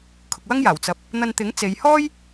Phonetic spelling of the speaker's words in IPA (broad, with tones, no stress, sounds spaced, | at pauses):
kʰ ʊ˧ k̚ w ɐ˥ ŋ j aː˨˩ w t͡s ɐ˨˥ p̚ | n̪ ɐ˧ n t̪ ɪ˨˥ ŋ t͡s e˨˧ j h ɔː˥ j